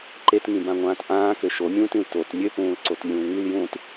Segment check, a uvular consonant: absent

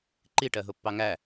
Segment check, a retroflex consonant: present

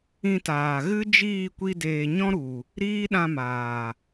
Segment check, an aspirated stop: absent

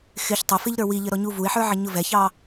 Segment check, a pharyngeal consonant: present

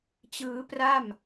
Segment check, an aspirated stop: absent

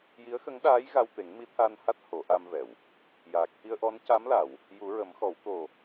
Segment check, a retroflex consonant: absent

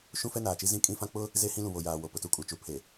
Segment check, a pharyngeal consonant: absent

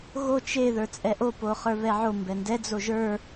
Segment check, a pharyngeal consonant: present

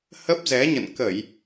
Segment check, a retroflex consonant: absent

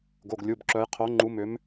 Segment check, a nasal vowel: absent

